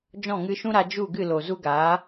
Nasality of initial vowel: nasal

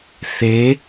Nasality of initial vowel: oral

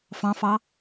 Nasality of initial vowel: nasal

